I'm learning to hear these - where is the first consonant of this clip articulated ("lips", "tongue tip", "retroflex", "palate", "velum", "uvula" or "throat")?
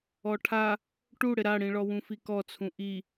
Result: retroflex